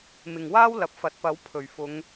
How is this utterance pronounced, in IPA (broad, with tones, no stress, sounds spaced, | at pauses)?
m ɪ˨ ŋ w aː˥ w l ɐ˨˥ p̚ f ɐ˨˥ t̚ p ɐ˨˥ w pʰ ɵ˨˩ ɥ f ʊ˨˧ ŋ